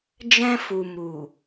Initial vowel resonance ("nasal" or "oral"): nasal